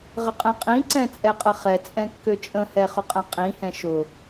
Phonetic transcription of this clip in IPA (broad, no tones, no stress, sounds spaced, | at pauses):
ʁ ə qʼ ɛ̃ qʼ ĩ ǀ ɛ̃ t͡sʼ ɛ qʼ ə χ ɛ t͡sʼ ɛ̃ kː ø t͡ʃʼ ə̃ h ɛ χ ʊ qʼ ɛ̃ qʼ ĩ h ɛ̃ ʃ ʊ